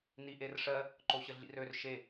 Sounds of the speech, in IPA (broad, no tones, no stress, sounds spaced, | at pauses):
n i ʔ e r ʂ ɜ | ǃ o ɕ ə ɮ ḭ r ø r ʃ e